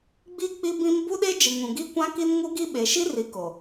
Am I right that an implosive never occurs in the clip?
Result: no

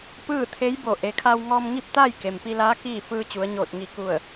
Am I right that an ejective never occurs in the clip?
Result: yes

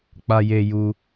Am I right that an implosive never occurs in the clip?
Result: yes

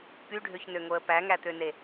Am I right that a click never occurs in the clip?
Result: yes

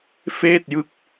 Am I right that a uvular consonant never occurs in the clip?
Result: yes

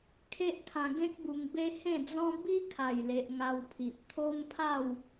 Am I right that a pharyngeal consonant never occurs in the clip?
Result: yes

